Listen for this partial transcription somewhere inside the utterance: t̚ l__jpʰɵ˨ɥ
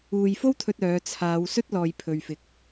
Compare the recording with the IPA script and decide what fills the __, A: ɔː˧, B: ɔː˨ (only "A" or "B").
B